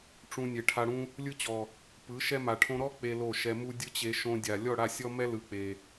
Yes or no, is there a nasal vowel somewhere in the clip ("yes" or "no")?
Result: yes